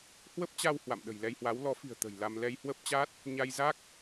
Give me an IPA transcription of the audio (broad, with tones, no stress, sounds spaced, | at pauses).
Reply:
h w ə˦˥ p̚ t͡ɕ a˧ w h w a̰˧˨ m ɗ ə̤˨˩ j l ɛ˧ j h w a˨˦ w l ɔ˨˦ f i̤˨˩ ə̯ t̪ ə̤˨˩ j l a˧ m l ɛ˧ j h w ə˦˥ p̚ t͡ɕ a˦˥ t̚ | ɲ a˧ j z a˦˥ k̚